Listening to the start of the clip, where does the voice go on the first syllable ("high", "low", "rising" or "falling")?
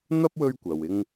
high